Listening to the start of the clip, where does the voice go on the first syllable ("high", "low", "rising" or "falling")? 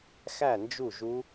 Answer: falling